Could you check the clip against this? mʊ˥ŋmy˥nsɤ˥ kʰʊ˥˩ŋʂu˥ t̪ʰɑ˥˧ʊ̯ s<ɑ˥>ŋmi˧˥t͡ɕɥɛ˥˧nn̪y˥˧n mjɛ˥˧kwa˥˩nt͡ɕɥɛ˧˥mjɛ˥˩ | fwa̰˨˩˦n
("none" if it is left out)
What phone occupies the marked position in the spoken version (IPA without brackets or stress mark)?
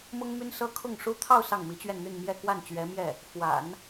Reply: ɑ˥˩